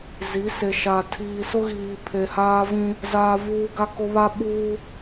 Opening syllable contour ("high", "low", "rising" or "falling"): rising